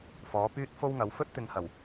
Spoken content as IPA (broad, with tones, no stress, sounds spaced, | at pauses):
f ɔː˨˥ p yː˥ t̚ f o˥ w ŋ ɐ˨˧ w f ɵ˥ t̚ t̪ ɪ˨ ŋ h ɐ˨˩ w